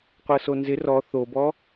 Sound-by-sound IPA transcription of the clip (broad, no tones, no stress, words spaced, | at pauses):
qʷɤsonzɪ rɔ θobɔ